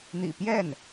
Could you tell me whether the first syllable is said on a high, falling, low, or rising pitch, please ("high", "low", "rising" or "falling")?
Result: low